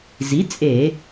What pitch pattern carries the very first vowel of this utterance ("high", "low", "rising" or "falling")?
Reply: rising